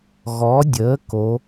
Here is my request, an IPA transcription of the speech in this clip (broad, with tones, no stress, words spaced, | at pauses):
ɣɔ˩˥dʲəː˩˥ ko˩˥